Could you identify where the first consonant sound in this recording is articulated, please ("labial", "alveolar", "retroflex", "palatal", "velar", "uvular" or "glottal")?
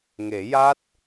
velar